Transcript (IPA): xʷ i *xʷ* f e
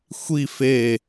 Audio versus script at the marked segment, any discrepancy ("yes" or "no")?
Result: yes